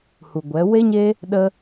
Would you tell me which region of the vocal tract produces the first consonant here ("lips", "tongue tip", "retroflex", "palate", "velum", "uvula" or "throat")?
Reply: throat